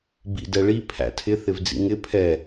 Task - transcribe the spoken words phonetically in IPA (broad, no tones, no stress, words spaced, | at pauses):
bḭdɛɭi pʰæ̰tʰɪ θɪvd͡zḭŋɪ pʰɛ